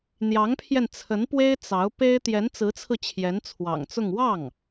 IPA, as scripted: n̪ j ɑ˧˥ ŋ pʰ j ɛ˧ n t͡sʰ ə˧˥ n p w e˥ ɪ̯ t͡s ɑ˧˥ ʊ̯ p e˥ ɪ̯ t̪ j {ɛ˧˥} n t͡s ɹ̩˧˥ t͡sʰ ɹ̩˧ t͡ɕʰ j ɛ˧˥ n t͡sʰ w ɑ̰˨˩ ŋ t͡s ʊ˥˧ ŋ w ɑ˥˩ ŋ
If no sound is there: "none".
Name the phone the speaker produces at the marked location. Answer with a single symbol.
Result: ɛ˧˥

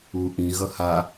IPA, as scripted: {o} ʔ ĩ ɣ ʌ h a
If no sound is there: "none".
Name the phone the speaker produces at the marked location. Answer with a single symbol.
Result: u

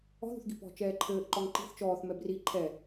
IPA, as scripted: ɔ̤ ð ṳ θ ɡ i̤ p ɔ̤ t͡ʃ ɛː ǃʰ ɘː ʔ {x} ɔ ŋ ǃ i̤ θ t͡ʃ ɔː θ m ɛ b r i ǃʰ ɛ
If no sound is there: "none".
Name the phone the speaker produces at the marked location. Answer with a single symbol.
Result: ǃ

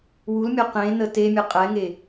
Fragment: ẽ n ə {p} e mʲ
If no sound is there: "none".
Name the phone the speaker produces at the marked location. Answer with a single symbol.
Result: t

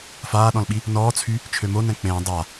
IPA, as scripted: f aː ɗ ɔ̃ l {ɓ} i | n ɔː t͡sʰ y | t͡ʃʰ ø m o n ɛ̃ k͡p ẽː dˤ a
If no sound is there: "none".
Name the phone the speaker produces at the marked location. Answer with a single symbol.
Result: ɓ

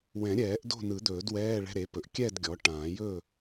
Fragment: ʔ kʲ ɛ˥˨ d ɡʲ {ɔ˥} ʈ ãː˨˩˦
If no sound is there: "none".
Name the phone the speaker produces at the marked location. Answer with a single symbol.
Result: ɔ˩˥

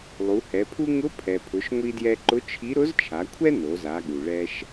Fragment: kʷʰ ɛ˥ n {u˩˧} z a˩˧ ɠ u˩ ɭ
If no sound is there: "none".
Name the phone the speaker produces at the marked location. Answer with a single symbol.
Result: o˩˧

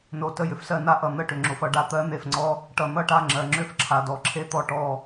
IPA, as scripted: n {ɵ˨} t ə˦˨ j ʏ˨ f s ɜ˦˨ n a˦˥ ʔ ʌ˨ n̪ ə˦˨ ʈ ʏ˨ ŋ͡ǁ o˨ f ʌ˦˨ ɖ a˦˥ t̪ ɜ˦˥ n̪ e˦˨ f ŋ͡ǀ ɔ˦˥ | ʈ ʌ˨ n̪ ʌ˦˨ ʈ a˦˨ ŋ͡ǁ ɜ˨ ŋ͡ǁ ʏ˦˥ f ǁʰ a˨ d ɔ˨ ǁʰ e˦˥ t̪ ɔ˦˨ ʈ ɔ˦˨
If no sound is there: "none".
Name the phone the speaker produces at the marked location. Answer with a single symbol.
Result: o˨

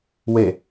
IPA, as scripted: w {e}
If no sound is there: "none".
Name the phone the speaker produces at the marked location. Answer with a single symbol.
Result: e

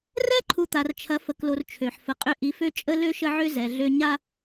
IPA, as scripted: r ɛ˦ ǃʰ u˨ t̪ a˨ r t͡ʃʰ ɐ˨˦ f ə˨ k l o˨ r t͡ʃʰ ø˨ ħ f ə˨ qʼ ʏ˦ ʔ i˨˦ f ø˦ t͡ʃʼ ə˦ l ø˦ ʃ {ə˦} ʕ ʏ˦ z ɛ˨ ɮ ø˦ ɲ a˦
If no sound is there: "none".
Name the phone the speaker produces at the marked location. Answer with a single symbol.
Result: ə˦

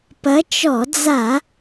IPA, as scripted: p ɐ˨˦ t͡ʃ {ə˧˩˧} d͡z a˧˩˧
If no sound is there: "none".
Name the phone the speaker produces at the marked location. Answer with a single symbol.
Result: ɔ˧˩˧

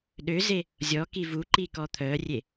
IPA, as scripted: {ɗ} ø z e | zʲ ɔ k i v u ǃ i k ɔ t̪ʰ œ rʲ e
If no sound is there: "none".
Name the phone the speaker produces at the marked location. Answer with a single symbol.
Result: ɗ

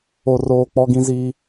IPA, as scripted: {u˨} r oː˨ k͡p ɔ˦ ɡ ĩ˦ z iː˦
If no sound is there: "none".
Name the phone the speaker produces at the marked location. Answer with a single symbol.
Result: o˨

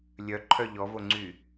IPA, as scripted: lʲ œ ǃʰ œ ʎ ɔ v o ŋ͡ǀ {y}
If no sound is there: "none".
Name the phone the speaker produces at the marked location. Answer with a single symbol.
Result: y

